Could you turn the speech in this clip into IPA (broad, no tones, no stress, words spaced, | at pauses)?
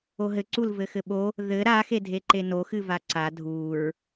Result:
oɦɘǀul vɘxɘɓo | ðɘ ɾaxe dʱeǃeno xɨvaǀa dʱuɹ